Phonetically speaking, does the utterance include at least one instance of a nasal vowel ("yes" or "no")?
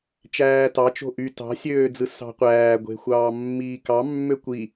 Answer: no